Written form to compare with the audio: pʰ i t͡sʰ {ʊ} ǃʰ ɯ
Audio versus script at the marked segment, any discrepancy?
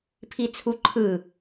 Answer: yes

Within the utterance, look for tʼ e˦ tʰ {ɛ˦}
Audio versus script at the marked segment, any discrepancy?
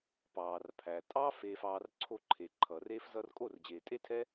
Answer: no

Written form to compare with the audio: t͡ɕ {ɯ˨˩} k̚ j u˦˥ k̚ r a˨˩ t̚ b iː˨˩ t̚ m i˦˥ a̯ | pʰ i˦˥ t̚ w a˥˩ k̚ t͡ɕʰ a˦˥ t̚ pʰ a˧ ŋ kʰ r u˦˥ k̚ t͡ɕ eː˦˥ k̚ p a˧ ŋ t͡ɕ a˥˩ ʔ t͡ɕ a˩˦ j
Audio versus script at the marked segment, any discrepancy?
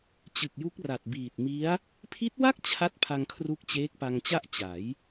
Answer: no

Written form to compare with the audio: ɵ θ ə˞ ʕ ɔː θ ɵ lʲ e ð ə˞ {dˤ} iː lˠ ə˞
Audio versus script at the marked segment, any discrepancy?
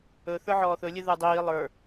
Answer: no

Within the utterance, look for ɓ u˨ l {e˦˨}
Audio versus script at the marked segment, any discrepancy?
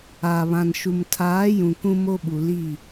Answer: yes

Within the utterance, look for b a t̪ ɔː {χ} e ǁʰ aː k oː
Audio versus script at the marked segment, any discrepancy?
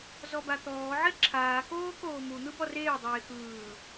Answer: yes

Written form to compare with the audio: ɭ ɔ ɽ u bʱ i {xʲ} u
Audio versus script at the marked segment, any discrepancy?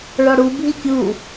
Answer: yes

